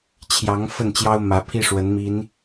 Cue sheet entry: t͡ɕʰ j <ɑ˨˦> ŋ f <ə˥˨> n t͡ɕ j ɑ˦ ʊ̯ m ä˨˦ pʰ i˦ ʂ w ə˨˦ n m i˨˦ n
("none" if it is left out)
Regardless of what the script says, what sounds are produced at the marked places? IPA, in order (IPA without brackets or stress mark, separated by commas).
ɑ˨˦, ə˥˨